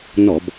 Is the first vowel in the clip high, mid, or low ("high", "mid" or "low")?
mid